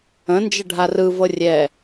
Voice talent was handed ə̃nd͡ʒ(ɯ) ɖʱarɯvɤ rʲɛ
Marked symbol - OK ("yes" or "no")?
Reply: no